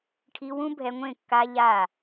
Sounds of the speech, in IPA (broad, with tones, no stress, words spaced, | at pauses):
ʈʰi˧wũ˦bʱɛ˧ŋʷẽ˦˨ kːa˧ ʎa˦˨